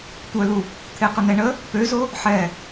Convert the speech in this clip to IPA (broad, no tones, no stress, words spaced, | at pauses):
tʷœlu | t̪ʰeqənɛɳə | pøzo | ħɛ